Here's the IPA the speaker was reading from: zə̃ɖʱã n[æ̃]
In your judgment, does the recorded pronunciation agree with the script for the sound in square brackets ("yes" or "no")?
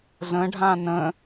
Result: no